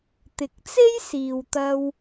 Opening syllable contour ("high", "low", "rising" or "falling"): low